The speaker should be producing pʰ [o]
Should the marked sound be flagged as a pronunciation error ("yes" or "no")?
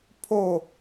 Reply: no